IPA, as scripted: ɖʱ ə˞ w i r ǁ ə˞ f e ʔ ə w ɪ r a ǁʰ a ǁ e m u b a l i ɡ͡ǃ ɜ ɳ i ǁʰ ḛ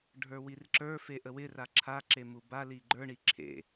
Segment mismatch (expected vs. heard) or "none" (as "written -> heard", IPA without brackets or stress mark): ɜ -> ə˞